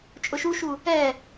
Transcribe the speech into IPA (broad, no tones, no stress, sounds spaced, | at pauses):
t͡ʃʼ ʊ ʃ u ʃ u | ɛ